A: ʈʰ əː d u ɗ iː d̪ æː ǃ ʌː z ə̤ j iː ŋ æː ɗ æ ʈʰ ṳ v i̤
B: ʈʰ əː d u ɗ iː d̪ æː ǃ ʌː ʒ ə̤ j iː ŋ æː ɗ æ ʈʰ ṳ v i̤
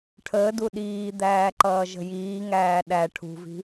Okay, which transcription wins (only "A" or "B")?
B